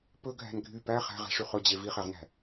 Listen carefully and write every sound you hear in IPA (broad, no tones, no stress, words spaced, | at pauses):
pɵɡʱæ̤n ɡʱy pæ χæ̤ʁɛ̤ʂy χɵd͡ʑe viχɛʁnæ̤